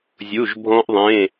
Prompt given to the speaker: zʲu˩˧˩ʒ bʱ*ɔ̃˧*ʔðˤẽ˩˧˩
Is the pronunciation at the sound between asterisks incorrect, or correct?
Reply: correct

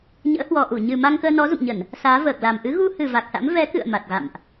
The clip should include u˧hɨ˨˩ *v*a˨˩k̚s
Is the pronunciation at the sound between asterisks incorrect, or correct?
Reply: correct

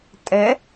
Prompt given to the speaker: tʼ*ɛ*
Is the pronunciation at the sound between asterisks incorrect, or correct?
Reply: correct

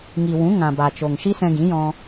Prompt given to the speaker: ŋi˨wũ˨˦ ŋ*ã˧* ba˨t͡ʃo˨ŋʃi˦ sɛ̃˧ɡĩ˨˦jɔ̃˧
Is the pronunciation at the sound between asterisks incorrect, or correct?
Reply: incorrect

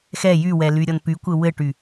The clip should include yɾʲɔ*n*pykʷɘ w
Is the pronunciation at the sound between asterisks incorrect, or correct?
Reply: correct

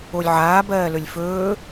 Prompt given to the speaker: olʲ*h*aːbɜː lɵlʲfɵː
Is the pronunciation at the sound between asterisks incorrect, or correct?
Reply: incorrect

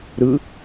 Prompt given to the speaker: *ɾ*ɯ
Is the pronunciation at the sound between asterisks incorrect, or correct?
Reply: correct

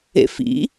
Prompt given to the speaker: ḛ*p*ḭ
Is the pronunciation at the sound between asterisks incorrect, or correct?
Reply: incorrect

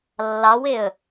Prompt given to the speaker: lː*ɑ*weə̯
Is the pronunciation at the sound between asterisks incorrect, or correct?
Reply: correct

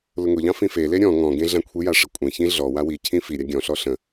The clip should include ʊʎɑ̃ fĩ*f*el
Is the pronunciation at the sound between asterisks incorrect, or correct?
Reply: correct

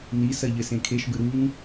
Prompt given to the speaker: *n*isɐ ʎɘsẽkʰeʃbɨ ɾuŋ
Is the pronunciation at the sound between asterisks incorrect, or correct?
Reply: correct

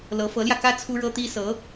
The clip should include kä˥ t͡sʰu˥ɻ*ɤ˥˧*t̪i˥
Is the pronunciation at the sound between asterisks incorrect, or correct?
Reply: incorrect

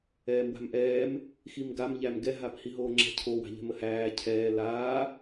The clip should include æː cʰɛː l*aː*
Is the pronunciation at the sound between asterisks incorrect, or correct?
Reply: correct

